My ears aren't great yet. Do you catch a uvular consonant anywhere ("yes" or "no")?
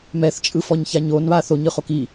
yes